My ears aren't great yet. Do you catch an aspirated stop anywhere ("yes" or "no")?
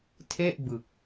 yes